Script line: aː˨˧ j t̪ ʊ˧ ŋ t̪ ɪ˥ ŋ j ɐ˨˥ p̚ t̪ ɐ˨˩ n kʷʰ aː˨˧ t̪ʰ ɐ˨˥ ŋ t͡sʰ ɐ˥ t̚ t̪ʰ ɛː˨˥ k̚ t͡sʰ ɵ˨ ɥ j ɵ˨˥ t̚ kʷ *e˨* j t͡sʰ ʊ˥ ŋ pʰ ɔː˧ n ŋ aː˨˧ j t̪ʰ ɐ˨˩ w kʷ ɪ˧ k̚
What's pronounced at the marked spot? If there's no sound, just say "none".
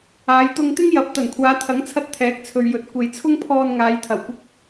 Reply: e˨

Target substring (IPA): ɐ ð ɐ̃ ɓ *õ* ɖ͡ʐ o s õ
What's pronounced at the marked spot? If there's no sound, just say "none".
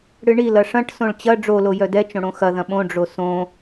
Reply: õ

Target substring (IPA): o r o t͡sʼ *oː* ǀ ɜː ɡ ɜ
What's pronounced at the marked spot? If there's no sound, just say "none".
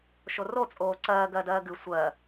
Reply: oː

